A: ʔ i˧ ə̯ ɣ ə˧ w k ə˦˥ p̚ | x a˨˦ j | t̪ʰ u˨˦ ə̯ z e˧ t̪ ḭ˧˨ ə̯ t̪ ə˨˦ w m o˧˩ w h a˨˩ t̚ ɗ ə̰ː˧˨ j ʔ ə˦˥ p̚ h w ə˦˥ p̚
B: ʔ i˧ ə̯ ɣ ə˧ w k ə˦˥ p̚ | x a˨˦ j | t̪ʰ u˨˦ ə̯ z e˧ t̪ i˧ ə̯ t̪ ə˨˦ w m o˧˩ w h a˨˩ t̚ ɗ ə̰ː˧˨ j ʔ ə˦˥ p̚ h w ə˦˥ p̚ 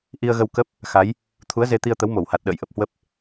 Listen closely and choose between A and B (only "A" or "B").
B